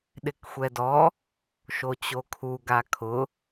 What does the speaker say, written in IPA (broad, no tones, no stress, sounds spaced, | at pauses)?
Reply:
ɗ ɪ k xʷ ɛ d ɔ | ʃ o t͡ɕ o kʰ u ɡ a kʰ ʊ